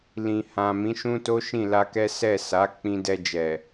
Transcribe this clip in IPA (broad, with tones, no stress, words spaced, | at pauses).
lĩ˨hã˨ mĩ˨˦ʃũ˦to˦ ʃĩ˦˨la˧kɛ˦ sɛ˦˨sa˨˦ k͡pĩ˧dɛ˧d͡ʒɛ˨